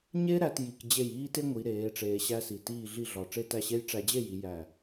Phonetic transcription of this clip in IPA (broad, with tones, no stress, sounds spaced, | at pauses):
ɲ e˥ ɾ æ˧ t j i˧ k d͡ʑ e˥˧ j iː˥ t e˥ ŋʷ i˩˧ ɾ eː˩˧ ʈ͡ʂ eː˧ ɕ æ˥ s i˧˩ t iː˥˧ ɮ i˥˧ ɮ ɒ˧˩ ʈ͡ʂ e˥˧ t æ˥˧ ɕ e˥ j ʈ͡ʂ æ˧ d͡ʑ e˥˧ j i˩˧ j æ˧˩